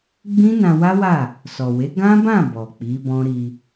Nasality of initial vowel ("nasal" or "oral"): nasal